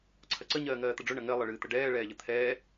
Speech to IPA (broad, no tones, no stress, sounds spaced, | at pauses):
ǀʰ ɐ ǀ ə ɲ ɜː ŋ ɜː t̪ ə ɖ͡ʐ ɵ ɳ ɐ ŋ ɜ lˠ ɨ ɭ ɨː t̪ ə ɖ ɛː ɭ ɛː ʎ ə t̪ʰ ɛː